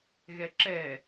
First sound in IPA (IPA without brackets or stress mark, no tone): ɣ